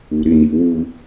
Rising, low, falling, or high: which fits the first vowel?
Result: low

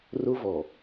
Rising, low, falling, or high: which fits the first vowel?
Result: high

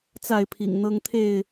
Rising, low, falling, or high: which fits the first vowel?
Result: falling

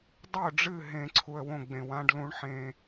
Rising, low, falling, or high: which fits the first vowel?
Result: falling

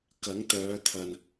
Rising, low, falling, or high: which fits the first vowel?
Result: rising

